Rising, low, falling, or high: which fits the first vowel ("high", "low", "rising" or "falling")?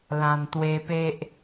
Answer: low